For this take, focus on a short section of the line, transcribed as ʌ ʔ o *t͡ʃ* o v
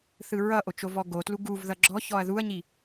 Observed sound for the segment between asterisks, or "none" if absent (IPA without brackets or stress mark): t͡ʃ